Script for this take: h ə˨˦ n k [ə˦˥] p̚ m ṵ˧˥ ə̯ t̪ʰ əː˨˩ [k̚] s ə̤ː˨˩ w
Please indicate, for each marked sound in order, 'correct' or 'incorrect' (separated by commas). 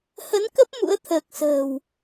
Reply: correct, correct